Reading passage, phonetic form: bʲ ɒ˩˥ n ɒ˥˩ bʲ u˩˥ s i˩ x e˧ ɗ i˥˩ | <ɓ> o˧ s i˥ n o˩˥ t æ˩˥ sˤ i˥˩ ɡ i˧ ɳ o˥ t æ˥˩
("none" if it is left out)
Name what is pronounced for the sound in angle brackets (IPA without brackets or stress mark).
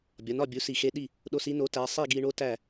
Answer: ɗ